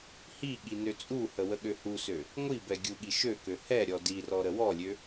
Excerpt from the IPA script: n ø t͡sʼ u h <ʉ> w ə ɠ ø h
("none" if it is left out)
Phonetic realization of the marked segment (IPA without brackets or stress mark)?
ə